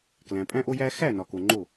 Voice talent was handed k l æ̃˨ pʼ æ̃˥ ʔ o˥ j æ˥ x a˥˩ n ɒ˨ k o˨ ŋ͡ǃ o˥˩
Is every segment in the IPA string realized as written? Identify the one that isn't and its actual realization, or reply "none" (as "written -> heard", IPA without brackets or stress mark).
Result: a˥˩ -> æ˥˩